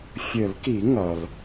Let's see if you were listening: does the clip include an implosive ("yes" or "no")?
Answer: no